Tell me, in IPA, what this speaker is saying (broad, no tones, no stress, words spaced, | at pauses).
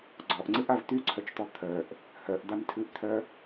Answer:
ɡ͡ǀɔʔŋ͡ǀɨʔav t̪yǀʰœt͡ʃt̪ɔ t̪ʰœʔ | hœʔd̪amtʰɨʔt̪ʰœ